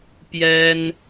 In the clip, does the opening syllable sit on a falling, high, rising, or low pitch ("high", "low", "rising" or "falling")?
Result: high